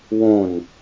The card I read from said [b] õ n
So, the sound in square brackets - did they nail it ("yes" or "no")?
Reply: no